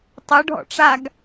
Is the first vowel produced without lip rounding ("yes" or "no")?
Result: no